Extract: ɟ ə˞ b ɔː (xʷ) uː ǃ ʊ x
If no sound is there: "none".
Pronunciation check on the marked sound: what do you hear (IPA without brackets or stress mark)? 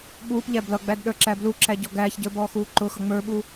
x